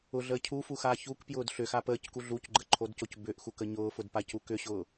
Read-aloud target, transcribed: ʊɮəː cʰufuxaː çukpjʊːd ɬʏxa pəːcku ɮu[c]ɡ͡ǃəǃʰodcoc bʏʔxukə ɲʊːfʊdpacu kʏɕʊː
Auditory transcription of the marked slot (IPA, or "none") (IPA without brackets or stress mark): c